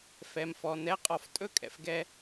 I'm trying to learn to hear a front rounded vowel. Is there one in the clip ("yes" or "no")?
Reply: no